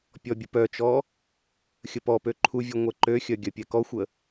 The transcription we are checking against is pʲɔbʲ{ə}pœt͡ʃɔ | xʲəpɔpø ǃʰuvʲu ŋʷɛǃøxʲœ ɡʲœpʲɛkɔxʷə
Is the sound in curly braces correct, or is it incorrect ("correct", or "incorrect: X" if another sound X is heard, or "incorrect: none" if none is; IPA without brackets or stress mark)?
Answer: correct